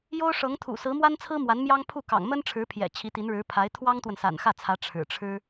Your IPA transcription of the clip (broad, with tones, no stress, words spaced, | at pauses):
jo˥ʊ̯ʂɤ˧˥ŋt̪ʰṵ˨˩ sɹ̩˧˥mwa˥nt͡sʰɹ̩˥ mwa˧˥nmjɑ˥ŋ pʰu˥˩kɑ̰˨˩ŋ mə˥nʈ͡ʂʰɻ̩˧˥pʰjɛ̰˨˩ t͡ɕʰi˧˥t̪i˧˥nɻɻ̩˧˥pʰa˧˥ɪ̯ t̪ʰwɑ˥ŋt̪wə˨n sa̰˨˩nxä˥˩t͡sʰä˧˥ ʈ͡ʂʰɻ̩˨˩ ʈ͡ʂʰɻ̩˥